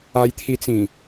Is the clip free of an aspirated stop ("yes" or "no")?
no